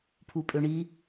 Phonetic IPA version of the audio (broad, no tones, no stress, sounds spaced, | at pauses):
pʰ u pʼ ø ɳ i